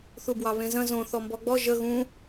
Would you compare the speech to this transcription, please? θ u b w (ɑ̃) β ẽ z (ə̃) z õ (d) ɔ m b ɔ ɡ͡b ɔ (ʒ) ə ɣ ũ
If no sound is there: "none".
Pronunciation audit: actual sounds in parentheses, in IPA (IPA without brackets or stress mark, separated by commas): ɑ, ə̃, θ, ʒ